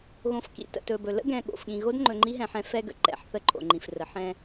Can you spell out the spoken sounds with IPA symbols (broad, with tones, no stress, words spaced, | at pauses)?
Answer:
ɣõ˨fkḭ˨ tə̰˨tɵ˨bɵ˨ lə̰˦ɡɛ̃˨ ɠo̰˨fɠĩ˨ ɣo˦dŋ͡ǃɵ˨ ŋ͡ǃi˦ɦɛ̃˨ ħɛ̃˦fɛ˦ɡə̰˨ǃɛ̰˨˦ħ θə˦ǃʼo̰˨ŋ͡ǃĩ˨f rə˨˦ħɛ̃˦